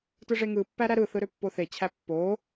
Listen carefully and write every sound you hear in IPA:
t ɯ ʐ e ŋ ɯ pː æ ɾ æ ɾ ɯ θ ɯ ɾ ø pː o θ e t͡ɕʰ æ pː o

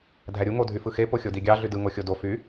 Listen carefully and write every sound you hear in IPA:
dʱ æ ɾʲ u ŋ o dʱ y f ɯ x e p o xʲ o d i ɡʲ ɑ ɮ y d ɯ ŋ o xʲ o d o f y

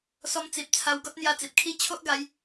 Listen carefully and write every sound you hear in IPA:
s ɔ˧ m t͡s i˨ p̚ t͡sʰ a˧ w ɡ ɔ˦ t̚ n̪ j a˧ t͡s i˨ p̚ kʰ i˦ t͡ɕʰ o˦ ʔ ɡ a˨˦ j

